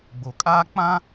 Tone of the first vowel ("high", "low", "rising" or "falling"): low